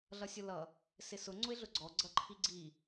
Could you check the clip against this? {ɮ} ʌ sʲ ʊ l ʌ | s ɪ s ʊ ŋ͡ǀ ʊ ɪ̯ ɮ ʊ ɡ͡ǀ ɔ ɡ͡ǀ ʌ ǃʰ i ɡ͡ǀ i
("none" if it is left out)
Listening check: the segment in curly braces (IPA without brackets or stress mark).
ɮ